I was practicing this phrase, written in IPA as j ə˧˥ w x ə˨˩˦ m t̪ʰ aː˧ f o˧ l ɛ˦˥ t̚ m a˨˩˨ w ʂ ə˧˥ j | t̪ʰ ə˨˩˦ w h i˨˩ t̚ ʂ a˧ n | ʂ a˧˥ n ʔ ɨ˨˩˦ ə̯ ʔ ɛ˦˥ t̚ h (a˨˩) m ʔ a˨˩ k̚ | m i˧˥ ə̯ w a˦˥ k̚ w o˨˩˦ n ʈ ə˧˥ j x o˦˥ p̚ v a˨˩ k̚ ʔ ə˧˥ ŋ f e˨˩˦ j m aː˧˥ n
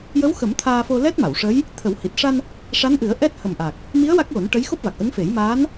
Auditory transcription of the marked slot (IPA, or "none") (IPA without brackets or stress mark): ə˨˩